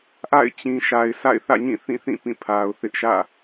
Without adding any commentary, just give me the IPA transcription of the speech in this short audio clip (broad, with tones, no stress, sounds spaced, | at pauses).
ʔ a̰˦˨ ɪ̯ t͡ɕ ĩ˨ ʃ a˨ ɪ̯ s a̰˦˨ ɪ̯ θ ä̰˦˨ ɲ ĩ˦˨ θ ĩ˦˨ θ ĩ˦˨ p ĩ˦˨ pʰ a˨ ʊ̯ θ ɪ˦ ʔ ʃ ä̰˦˨